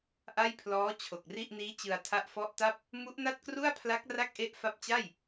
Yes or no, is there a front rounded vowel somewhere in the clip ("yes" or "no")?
no